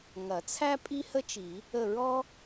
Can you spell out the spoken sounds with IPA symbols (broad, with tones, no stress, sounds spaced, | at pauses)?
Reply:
ŋ ɐ˨˩˦ t͡sʰ æ˥ pʼ i˥ h ə˥ t͡ʃ i˨˩˦ | ə˦˨ ɹ ɔ˥